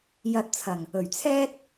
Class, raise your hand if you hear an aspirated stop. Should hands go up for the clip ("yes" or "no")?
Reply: yes